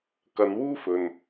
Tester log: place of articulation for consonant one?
velar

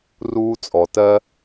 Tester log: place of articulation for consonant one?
alveolar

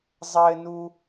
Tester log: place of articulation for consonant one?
alveolar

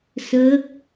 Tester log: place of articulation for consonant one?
alveolar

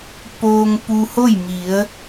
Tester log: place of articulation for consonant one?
labial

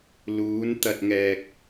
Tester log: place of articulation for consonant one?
alveolar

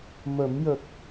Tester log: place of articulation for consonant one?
labial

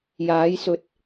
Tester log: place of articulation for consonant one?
palatal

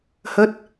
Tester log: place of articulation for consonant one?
glottal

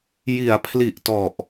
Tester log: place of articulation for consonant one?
palatal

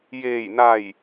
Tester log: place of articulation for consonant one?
palatal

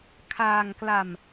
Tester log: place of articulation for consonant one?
velar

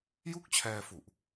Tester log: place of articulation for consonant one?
palatal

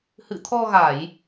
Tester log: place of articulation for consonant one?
glottal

